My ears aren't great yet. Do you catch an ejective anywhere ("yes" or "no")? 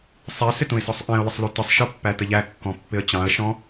no